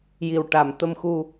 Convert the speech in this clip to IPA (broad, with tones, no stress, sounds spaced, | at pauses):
j i˨˩ w ʈ a˨˩ m t̪ ə˧ m x u˧